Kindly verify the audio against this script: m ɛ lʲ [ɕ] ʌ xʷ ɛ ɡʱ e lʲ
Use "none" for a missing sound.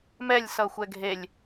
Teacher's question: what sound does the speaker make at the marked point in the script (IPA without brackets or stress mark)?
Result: s